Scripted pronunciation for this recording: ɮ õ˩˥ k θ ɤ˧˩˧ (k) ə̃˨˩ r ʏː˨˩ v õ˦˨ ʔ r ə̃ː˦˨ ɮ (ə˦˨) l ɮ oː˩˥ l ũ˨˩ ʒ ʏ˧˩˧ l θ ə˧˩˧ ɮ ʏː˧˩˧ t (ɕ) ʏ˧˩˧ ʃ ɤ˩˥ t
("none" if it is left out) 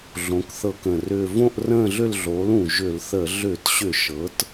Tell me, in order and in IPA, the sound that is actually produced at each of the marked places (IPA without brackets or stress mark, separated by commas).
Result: k, ʏ˦˨, ɕ